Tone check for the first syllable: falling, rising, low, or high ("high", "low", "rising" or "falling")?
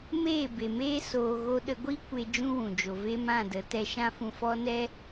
falling